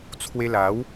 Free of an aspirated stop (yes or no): no